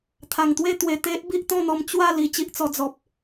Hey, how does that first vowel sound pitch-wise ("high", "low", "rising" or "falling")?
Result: low